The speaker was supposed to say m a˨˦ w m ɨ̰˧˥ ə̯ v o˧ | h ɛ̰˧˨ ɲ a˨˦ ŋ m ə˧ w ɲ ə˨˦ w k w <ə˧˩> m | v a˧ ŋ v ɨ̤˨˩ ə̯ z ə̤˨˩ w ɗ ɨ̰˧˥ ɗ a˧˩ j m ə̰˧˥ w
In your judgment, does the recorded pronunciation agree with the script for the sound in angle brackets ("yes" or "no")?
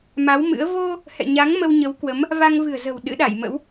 no